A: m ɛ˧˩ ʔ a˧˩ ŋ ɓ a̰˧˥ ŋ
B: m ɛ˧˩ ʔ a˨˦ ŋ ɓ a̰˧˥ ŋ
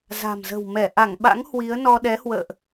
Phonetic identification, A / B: A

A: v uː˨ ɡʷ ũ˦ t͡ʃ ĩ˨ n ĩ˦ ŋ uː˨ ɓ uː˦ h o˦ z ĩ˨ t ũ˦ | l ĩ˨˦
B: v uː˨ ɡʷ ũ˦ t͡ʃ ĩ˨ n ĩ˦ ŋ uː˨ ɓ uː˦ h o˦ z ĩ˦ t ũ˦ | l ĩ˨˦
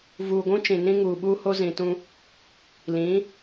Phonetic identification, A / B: A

